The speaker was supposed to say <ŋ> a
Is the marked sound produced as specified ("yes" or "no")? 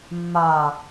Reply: no